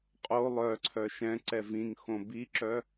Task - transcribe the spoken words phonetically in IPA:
qʼ o lˠ œ ǀʰ œ ʃ ɛ̃ ǀ ɛ v ĩ ŋ x õ b i ǁ œ

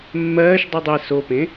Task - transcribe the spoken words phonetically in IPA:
mː ɜː ʃ dˤ ɨ dˤ i s o p ẽ

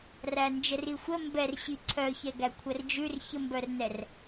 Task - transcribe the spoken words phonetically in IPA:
r æ n d͡ʒ ə r i xʷ ə m b ɛ r ɕ i ǀʰ œ ç ɛ ɡ æ kʷʰ ə r d͡ʒ ʉ r ç ə m b œ r n ɛ r

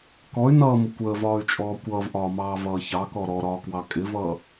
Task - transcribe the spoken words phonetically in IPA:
k ɔ y̯ n ʌː m ə kʷ əː v ɒː y̯ t͡ʃʼ ɔː kʷ ʌː v ʔ ɒː m ɑː v ʌː ç ɑ k ɔ ɾ ɔ ɾ ɒː k w ɑ kʼ ɪ v ʌː

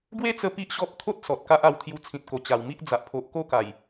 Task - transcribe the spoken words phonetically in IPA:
ɡ w e˦ t͡s ə˧ p i˦ ʔ ɕ ɔ˦ p̚ t̪ʰ o˦ t̚ s ɔ˨ t̚ k a˦ ʔ a˧ w t̪ʰ j u˧ t͡sʰ ĩ˨ t̚ k o˨˩ t͡ɕ a˨˩ w m i˦ ʔ d͡z a˨ ʔ pʰ o˨ ʔ k o˥˧ k a˨˩ j

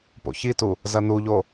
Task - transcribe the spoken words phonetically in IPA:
p o̰ ç i t u | z ɐ n u ʎ o

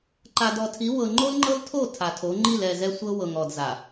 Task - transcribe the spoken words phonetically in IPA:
ǃ a˨ d ɔ˨ tʰ i˨˦ w ɤ˨ ŋ͡ǃ o˦ l ŋ͡ǃ ɤ˦ l tʰ o˦˨ tʰ a˨ tʰ o˨˦ ŋ͡ǃ i˦˨ l ɛ˦˨ z ɛ˦ sʷ ɤ˦ w ɤ˨ ŋ ɔ˨ d z a˨

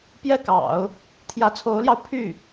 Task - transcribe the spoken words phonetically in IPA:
p j ɛ˥˩ k ɑ̰˨˩˦ ʊ̯ | t̪ʰ j ä˧˥ t͡sʰ o˧˥ ʊ̯ l j ɑ˧ ʊ̯ pʰ y˥˩

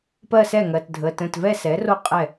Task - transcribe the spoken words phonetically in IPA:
p ɜ˥˧ s ɛ˥˩ ŋ ɜ˩˧˩ t dʱ ə˩˧˩ t ə̃˧˩ t v ɛ˥˧ s ɛ˩˥ r o˥˧ qʼ ɛ˥˩

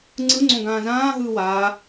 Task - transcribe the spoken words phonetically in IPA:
ŋ͡ǀ ɯ ŋ͡ǀ õ ɡ ãː z ãː ɦ ɯː w aː

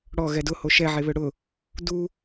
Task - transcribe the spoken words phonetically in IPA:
ɽ ɔ ɣ ɛ d ʊ h o ʃ ɛ ʕ e β ø ɽ ʊ | d u

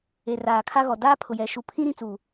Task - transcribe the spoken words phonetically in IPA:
e˨ r aː˨ kʰ a˦ ɣ ɔ˨ d aː˦ pʰ ʊ˨ j ɛ˨ ʃ u˨ pʰ ĩ˦ ɾ ĩ˦˨ t͡s u˨

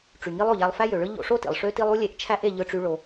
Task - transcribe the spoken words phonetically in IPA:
ʈ͡ʂ y˩ ŋ i˧ lˠ o˩ ʎ æ˧ lˠ f æ˥ j ø˩ ɭ ɯ˥ ʎ o̰˧ ʂ o˥ t ḭ˩ lˠ ʂ ø˥ t i˥ lˠ u˥ lʲ e˧ ʔ t͡ʃʰ æ˥ ʔ e˥ ʎ ɯ˥ ʈ͡ʂ y˥ ɭ o˧

